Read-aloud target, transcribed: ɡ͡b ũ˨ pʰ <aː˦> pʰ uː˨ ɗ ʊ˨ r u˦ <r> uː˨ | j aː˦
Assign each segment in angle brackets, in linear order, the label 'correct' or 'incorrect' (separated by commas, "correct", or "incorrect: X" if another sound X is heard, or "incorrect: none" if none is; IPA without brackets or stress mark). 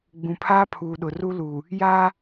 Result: correct, incorrect: l